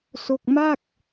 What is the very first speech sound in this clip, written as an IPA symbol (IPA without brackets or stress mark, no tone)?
s